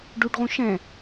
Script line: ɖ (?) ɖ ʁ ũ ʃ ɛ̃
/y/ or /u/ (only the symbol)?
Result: u